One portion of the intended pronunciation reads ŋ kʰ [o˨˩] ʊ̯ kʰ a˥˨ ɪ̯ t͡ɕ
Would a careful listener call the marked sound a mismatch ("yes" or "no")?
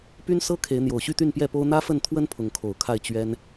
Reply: no